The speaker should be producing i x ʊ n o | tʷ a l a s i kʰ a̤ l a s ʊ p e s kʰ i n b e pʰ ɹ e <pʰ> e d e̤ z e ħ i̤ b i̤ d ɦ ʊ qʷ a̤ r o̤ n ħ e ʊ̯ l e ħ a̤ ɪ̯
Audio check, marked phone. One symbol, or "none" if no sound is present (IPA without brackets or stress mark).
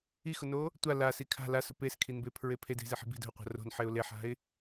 pʰ